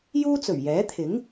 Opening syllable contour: high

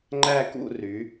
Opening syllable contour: falling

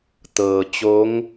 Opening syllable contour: low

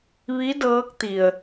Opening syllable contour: rising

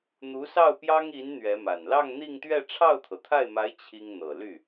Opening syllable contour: rising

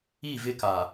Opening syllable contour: falling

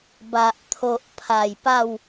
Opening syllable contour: low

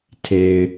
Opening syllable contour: low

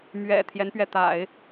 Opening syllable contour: low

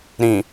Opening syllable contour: low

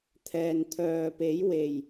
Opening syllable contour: low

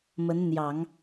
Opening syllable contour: rising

